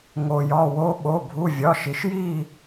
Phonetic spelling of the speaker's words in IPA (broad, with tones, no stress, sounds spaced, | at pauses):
ŋ o˩ j ɒ˩˧˩ w o˧˥ ɓ o˩˧˩ bʱ u˩˧˩ vʲ ɒ˩˧˩ ʃ i˩ ʃ j i˥˨